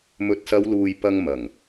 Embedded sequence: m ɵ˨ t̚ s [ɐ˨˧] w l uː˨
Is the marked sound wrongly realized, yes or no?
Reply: no